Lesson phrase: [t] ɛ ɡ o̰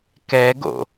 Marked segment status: incorrect: k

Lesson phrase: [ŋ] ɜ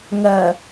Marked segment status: correct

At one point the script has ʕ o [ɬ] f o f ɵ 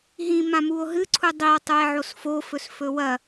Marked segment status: incorrect: s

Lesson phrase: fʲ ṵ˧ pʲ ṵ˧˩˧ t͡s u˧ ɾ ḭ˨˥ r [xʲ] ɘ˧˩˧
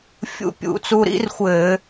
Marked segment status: incorrect: xʷ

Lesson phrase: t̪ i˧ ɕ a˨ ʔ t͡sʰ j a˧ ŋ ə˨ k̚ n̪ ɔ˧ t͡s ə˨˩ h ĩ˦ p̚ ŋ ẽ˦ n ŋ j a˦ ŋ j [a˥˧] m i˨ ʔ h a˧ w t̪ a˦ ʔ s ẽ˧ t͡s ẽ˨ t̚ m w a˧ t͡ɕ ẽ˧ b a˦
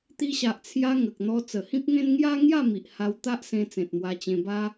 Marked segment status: correct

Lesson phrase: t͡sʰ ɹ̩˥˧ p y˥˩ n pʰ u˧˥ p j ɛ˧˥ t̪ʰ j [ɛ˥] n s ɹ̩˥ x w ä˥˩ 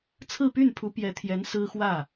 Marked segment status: incorrect: ɛ˧˥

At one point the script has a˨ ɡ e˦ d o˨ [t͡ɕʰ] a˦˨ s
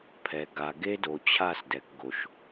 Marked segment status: correct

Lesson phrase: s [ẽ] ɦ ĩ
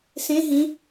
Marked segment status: correct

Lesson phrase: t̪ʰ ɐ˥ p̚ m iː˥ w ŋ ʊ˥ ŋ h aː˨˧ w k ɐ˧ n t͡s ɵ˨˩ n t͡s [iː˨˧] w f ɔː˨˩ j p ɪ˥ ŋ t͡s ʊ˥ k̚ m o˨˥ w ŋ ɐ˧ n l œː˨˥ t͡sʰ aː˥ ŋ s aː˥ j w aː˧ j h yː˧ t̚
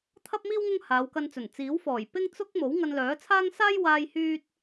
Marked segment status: incorrect: iː˨˥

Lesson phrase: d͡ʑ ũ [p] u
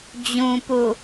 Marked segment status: correct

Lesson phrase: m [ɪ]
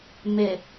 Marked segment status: correct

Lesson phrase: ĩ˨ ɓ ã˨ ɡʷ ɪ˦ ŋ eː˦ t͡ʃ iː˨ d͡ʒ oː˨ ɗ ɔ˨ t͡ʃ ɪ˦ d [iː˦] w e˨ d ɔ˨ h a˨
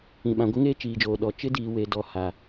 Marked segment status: incorrect: iː˨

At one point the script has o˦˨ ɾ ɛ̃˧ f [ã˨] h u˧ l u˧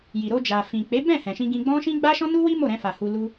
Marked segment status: incorrect: a˨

